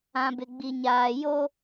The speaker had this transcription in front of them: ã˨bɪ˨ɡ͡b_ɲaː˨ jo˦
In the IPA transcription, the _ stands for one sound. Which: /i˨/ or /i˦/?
i˨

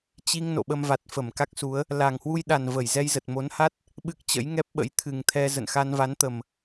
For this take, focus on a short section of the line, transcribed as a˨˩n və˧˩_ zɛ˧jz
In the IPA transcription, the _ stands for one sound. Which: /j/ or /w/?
j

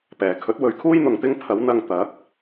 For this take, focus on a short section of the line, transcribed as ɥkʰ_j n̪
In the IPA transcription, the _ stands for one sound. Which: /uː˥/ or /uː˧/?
uː˥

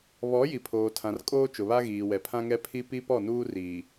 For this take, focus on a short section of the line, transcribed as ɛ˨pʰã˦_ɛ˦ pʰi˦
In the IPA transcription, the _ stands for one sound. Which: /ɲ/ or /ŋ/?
ŋ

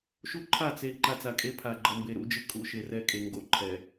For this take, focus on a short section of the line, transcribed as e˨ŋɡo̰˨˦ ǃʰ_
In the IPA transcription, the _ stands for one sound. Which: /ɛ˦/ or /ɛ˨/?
ɛ˨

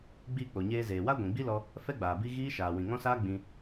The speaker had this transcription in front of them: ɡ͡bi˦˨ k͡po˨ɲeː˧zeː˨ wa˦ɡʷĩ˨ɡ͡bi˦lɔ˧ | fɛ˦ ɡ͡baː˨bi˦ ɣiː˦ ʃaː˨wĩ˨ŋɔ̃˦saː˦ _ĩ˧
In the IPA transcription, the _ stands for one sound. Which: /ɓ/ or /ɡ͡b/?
ɡ͡b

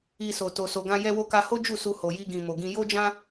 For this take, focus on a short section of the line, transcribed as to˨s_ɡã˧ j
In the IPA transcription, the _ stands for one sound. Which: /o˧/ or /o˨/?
o˨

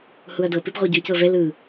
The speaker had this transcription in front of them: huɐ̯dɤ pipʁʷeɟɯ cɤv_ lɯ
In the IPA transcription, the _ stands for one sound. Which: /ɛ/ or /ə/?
ɛ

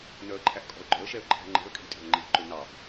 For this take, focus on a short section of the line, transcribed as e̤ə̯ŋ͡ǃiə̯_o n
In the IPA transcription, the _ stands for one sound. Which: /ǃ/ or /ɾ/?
ǃ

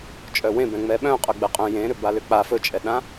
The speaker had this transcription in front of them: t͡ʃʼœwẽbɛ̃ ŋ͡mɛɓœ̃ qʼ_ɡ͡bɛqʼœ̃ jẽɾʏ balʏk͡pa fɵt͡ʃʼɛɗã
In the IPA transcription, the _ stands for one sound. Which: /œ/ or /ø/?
œ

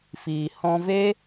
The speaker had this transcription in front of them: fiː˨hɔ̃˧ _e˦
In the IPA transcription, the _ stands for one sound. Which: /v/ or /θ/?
v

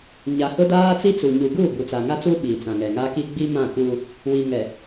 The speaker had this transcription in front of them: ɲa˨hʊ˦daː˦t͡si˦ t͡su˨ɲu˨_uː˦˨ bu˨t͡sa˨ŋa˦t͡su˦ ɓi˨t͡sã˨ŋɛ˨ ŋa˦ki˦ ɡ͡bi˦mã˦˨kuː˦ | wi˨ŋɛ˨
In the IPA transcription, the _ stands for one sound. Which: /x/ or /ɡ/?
ɡ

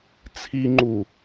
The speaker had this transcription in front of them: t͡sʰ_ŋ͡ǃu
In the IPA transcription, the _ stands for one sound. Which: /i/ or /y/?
i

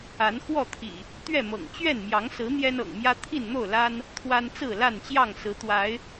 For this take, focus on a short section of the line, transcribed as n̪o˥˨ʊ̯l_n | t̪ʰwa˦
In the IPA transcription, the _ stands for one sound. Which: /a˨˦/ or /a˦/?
a˦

